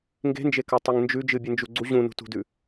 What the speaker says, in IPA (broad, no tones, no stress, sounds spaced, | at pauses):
ŋ ɡ e̤ n d͡ʒ e k ɐ tˤ ɨ ŋ n d͡ʒ ʉ d͡ʒ ɨ bʲ ɨ n d͡ʒ u ɡ͡ǀ u ʑ ũ n ṳ t ṳ d ʉ